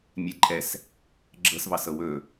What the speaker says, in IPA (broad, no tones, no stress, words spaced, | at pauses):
mʲɛǃʼɛs | ɡ͡ǁɤsvɑsɤ wɵ